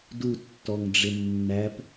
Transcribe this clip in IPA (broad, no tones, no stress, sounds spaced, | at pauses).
d u tː ɔ ŋ ɖ͡ʐ ɪ nː æ p